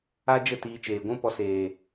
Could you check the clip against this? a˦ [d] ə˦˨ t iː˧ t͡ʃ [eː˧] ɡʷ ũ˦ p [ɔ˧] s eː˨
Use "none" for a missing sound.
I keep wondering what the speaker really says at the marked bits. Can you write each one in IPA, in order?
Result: d͡ʒ, eː˨, ɔ˧

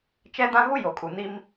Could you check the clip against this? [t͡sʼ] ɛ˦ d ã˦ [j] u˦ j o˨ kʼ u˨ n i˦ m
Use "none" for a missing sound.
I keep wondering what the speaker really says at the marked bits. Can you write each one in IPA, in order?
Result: t͡ʃ, ɣ

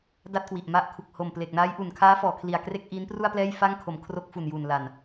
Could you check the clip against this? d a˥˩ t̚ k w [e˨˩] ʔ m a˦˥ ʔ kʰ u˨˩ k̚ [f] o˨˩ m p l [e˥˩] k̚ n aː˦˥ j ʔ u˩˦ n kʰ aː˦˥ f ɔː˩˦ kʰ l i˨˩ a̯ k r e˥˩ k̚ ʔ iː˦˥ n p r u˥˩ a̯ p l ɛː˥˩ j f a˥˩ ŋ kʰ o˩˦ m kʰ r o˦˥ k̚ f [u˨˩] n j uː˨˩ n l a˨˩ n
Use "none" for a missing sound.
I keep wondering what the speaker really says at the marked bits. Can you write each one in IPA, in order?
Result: i˨˩, h, e˨˩, u˨˩

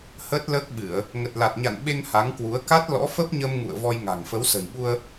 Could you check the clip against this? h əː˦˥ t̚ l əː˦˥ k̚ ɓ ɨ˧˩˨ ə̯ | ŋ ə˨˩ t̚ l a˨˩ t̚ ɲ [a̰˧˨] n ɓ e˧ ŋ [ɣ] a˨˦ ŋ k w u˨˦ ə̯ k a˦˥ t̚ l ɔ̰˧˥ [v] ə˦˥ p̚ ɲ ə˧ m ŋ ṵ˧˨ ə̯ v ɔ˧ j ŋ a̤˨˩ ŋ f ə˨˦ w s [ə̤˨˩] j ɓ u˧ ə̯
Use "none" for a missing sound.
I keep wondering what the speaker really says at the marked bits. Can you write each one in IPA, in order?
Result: a̰˧˨, h, f, ə̤˨˩

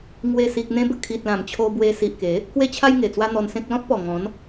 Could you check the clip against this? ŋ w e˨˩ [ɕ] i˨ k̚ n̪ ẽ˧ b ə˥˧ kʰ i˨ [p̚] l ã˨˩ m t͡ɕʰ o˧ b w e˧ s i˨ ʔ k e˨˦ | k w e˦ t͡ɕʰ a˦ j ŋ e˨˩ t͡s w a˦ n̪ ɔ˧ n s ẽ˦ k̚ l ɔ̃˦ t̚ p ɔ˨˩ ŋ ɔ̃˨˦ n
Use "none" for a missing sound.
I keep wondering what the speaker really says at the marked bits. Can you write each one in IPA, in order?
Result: s, t̚

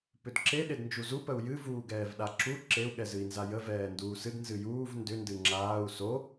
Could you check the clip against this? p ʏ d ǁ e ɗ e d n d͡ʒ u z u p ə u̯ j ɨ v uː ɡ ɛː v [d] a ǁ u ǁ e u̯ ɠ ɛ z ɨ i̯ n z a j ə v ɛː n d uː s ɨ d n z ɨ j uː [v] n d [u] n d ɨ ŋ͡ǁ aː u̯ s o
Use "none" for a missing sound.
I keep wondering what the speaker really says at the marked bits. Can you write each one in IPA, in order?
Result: ɗ, v, ʏ

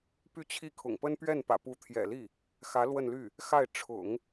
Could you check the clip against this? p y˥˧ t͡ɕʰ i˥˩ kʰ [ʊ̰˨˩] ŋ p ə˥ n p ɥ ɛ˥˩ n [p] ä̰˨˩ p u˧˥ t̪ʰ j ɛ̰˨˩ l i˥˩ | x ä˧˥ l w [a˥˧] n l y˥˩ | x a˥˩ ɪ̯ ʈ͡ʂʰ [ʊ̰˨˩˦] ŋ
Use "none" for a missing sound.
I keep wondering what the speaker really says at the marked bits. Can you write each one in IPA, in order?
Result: ʊ̰˨˩, p, ə˥˧, ʊ̰˨˩˦

